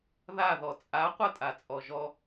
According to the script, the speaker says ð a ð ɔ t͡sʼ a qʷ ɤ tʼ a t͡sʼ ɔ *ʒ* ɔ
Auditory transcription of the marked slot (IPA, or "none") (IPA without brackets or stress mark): ʒ